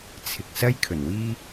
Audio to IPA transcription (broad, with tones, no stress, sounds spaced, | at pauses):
t͡sʰ ɪ˨ k̚ s ɐ˥ j kʰ ɵ˨˩ n w iː˥